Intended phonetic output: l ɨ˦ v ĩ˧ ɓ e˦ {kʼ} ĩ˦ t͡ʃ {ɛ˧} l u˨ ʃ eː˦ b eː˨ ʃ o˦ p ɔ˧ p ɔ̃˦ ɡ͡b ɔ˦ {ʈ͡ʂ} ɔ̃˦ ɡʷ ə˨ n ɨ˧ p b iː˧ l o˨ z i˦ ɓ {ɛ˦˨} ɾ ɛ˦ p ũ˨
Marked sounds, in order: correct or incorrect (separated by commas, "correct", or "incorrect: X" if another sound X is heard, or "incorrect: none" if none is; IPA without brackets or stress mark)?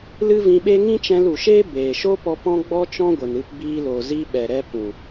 incorrect: ŋ, incorrect: ɛ̃˧, incorrect: t͡ʃ, incorrect: ɛ˨